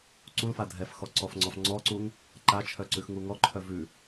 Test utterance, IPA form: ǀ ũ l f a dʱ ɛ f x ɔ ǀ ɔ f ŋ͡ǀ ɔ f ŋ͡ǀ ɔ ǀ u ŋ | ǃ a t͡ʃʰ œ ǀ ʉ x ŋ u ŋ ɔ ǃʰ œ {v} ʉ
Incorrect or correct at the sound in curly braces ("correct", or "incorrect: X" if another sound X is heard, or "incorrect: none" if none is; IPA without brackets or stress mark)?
correct